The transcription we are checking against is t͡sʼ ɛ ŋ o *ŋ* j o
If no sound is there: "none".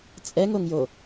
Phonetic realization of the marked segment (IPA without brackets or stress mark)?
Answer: ŋ